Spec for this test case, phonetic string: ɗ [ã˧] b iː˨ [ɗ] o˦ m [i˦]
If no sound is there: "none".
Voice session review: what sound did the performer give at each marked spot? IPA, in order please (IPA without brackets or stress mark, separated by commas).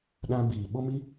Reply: ã˧, ɓ, i˦